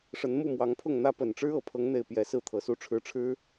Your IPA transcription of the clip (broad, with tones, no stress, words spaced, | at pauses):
ʂə˨˦nmu˥˨mwɑ˨˦ŋpʰʊ˥˨ŋ n̪ä˦pə˨˩n ʈ͡ʂɻ̩˦ɤ˨˦pʰɤ˨˦ŋn̪e˨˩ɪ̯ pjɛ˨˦ sɹ̩˦t̪ʰɤ˨˩su˥˨ʈ͡ʂʰɻ̩˦ ʈ͡ʂʰɻ̩˦